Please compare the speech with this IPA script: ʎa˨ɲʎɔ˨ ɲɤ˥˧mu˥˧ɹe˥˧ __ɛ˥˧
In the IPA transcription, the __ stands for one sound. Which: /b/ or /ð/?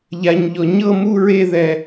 ð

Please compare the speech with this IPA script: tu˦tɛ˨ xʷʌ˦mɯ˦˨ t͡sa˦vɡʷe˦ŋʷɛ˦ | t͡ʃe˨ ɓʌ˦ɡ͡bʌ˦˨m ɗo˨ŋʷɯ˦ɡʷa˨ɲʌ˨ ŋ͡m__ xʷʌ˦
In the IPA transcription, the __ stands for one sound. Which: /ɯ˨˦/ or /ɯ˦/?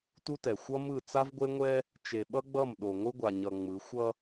ɯ˨˦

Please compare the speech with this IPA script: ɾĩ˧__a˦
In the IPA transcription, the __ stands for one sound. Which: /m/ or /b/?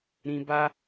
b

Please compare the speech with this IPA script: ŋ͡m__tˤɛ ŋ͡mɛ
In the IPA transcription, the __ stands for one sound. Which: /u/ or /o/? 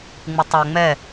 u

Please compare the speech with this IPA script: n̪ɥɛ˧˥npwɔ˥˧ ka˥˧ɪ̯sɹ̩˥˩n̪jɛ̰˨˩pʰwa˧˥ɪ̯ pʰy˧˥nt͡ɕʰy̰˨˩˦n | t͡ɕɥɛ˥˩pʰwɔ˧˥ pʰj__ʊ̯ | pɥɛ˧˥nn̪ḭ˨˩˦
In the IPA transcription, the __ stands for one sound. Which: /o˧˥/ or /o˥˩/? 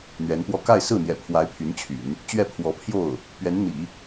o˥˩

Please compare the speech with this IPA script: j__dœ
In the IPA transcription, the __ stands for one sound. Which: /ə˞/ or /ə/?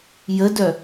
ə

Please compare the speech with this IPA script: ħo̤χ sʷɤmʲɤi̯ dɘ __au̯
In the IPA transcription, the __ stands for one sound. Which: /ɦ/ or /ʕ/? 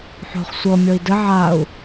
ʕ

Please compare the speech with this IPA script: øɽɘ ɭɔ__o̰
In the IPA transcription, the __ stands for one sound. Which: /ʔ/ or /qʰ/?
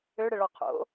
qʰ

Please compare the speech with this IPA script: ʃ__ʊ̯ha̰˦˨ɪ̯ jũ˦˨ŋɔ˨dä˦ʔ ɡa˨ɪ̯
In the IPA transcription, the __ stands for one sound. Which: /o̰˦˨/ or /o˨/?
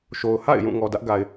o˨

